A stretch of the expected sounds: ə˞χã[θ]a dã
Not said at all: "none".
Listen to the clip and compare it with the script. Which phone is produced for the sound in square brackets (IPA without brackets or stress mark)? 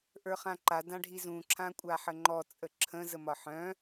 ǃ